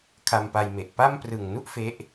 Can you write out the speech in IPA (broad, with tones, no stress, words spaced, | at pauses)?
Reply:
kʰa˧mpa˧jme˨˩ʔ pa˥˩m prɯ˨˩ŋnu˥˩ʔ fe˦˥ʔ